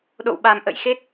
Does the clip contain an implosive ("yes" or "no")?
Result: yes